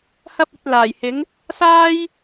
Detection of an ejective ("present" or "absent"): absent